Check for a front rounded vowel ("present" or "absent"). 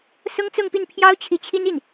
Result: absent